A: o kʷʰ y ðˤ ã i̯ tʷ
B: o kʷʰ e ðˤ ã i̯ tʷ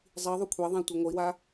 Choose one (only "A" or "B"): B